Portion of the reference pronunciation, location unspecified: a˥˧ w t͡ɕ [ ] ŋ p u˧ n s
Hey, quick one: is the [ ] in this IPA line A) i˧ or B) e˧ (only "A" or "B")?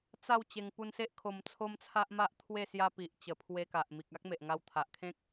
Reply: B